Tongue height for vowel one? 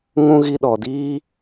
high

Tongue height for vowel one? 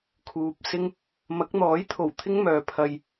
high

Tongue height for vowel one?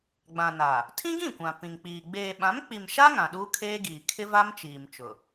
low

